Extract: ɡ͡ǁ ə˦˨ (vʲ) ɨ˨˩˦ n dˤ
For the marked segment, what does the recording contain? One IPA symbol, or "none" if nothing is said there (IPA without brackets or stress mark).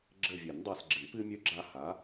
vʲ